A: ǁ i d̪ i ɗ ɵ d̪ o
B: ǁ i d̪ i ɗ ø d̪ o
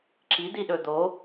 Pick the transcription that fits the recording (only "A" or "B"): A